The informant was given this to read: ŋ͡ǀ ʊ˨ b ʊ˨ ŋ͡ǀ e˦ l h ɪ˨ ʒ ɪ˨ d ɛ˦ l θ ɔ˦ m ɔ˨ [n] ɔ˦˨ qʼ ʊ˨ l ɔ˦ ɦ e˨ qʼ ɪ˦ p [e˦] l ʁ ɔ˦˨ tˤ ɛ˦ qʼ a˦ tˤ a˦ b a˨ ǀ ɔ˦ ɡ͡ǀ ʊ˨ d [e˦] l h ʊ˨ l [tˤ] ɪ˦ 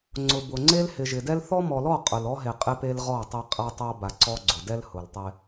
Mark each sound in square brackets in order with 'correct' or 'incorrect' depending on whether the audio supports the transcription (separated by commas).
incorrect, correct, incorrect, correct